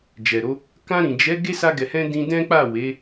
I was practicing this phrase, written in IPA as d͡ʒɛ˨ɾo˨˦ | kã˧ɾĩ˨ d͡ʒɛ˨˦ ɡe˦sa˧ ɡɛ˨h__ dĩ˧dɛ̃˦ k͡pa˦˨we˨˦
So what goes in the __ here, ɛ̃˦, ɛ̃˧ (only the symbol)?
ɛ̃˧